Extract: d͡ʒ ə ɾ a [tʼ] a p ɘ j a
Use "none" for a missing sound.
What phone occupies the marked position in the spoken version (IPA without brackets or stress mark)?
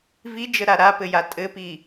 ɾ